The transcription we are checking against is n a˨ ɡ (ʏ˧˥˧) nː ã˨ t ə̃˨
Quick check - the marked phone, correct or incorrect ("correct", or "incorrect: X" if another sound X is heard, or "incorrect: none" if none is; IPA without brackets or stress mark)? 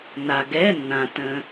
incorrect: ɛ˧˥˧